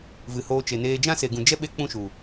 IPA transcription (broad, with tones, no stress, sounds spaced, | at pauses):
v ɨ˨ h oː˧ t͡ʃ e˨ n eː˧ d͡ʒ ã˦ s e˨ ɡ ũ˨ d͡ʒ ɛ˦ ɓ e˦ k͡p ũ˦ ʃ u˨